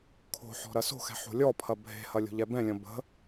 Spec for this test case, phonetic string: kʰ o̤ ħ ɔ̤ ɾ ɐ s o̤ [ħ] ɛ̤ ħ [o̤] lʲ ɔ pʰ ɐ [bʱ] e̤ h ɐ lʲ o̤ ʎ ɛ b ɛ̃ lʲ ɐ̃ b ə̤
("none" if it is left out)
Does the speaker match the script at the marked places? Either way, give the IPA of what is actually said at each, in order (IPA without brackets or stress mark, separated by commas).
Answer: x, o̤, bʱ